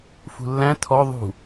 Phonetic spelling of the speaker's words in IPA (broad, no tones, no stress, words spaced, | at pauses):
fṳlːæ̃ tʰɔ ðˤṳ